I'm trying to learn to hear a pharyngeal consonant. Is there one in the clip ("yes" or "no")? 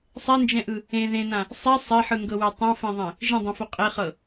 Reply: yes